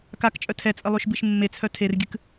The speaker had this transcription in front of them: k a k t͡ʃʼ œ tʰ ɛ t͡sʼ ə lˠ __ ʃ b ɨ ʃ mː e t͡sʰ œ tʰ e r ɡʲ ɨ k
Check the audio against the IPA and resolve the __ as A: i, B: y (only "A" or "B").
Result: B